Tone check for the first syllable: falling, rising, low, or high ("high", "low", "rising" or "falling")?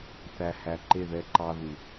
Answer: low